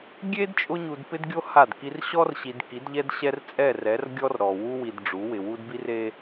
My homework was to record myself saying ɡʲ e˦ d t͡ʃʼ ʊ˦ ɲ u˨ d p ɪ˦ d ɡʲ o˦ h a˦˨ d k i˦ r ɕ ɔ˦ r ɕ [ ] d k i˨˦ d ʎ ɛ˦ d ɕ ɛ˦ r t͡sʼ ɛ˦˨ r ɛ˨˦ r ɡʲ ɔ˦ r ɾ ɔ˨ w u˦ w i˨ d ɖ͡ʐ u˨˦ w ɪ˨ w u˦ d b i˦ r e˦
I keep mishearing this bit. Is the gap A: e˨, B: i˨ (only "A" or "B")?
B